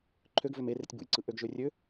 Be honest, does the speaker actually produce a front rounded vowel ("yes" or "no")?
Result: yes